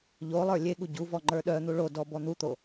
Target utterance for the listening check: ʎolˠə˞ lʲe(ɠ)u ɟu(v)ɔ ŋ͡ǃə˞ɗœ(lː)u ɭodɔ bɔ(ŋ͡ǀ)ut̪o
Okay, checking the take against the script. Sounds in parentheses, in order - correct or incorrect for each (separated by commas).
correct, correct, incorrect, incorrect